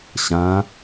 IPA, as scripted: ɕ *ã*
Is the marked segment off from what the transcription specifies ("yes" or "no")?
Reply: no